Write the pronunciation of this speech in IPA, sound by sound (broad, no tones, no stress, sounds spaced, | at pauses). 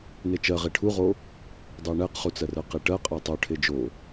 n e t͡ʃ ɜ ʁ e ʈʰ u ʁ o | dˤ ɛ ɳ ɛ q χ u t͡s ɜ r ɜ q e ʈ ɜ qʼ ɛ tˤ o ʈʰ e d͡ʒ o